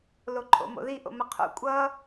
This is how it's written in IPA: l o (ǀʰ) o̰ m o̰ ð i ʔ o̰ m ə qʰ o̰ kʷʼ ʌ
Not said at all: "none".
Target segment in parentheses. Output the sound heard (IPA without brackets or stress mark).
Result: ǃʰ